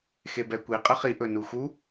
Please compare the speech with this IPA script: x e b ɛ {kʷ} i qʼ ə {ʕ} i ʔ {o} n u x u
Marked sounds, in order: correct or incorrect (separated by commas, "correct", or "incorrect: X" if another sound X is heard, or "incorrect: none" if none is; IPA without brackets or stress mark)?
correct, incorrect: χ, incorrect: ɵ